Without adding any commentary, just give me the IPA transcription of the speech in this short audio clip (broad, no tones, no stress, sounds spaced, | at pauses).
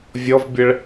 vʲ ɔ v bʲ ə ɭ